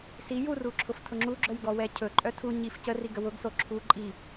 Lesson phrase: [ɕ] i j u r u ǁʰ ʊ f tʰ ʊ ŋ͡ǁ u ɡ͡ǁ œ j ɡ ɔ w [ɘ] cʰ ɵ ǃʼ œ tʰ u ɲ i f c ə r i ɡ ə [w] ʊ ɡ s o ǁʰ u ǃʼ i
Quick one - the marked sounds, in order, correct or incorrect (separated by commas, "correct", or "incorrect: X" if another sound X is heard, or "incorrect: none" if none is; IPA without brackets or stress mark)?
incorrect: s, incorrect: ɛ, correct